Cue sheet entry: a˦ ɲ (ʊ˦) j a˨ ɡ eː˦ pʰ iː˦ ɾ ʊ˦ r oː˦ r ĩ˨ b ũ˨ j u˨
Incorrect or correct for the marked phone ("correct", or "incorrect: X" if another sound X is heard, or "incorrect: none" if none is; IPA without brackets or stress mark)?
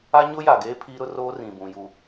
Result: correct